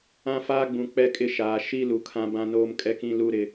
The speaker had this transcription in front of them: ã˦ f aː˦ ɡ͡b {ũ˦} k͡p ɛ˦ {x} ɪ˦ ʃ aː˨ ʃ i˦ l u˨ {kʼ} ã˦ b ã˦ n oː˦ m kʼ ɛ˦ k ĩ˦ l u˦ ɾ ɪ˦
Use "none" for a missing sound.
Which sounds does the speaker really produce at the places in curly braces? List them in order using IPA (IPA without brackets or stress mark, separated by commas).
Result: ũ˨, kʼ, kʰ